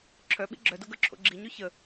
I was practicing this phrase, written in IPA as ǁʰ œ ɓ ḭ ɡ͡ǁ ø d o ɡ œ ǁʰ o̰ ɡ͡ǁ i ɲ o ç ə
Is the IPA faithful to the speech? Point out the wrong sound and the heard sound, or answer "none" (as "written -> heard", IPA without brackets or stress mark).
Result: ø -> œ